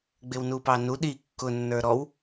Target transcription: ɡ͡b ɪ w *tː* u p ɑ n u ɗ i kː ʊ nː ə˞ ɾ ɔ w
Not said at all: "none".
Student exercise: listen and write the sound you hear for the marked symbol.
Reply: n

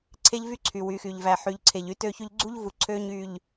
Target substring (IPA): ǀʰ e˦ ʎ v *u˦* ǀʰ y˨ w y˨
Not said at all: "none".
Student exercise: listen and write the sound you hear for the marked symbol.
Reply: y˦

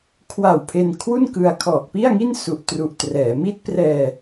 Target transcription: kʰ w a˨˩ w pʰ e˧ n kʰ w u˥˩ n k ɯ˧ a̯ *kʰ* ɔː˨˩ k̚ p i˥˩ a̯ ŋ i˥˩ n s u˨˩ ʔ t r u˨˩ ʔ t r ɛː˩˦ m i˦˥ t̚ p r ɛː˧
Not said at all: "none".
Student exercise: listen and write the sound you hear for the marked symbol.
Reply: kʰ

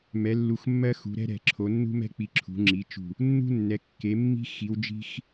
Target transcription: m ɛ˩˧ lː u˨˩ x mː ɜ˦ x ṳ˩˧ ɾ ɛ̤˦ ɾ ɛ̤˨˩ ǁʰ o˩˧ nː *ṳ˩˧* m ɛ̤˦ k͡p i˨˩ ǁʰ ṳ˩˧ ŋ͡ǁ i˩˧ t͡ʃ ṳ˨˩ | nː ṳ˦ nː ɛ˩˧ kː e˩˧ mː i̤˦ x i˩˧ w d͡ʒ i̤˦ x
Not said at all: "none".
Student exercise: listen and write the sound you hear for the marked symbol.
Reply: ṳ˦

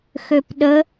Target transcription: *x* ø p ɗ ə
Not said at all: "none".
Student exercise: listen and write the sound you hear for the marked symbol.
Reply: x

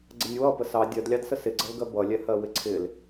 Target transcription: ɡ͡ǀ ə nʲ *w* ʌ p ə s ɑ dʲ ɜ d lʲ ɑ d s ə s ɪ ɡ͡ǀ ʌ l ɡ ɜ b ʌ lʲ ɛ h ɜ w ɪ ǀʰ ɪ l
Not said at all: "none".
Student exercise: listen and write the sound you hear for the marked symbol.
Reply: w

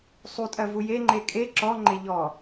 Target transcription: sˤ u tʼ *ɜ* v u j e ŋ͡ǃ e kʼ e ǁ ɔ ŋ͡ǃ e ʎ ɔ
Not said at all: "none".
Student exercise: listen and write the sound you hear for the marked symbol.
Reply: ɜ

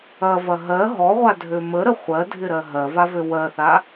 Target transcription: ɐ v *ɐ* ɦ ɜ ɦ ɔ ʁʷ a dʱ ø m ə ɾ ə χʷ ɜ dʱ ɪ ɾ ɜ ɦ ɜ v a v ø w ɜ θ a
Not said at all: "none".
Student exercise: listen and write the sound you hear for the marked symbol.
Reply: ɐ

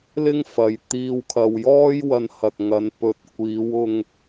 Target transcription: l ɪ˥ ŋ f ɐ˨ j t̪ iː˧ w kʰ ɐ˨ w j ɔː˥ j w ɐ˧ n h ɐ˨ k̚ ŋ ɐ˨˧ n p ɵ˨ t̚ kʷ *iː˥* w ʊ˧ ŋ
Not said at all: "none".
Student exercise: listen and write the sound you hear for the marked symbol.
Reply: iː˨˧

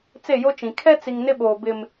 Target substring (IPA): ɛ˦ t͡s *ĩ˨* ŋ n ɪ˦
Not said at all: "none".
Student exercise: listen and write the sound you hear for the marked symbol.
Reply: i˨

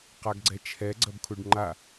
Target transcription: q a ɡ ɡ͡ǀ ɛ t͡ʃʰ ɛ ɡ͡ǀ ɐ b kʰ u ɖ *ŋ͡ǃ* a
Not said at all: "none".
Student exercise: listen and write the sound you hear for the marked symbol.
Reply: ŋ͡ǃ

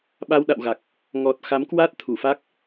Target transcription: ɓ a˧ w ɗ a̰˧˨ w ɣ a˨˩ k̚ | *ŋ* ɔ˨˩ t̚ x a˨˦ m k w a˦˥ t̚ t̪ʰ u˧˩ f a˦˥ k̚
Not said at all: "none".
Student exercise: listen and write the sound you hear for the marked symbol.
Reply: ŋ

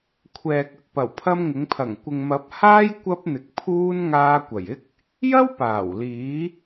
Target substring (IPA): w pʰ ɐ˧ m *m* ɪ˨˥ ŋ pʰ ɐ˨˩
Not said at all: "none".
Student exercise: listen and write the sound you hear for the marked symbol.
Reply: ŋ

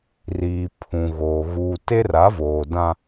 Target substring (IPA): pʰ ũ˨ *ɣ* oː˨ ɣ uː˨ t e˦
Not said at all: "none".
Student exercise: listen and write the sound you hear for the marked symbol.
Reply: ɣ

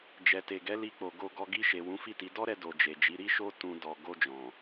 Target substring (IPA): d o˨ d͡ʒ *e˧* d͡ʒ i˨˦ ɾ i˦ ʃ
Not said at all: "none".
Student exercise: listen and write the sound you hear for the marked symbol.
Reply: e˨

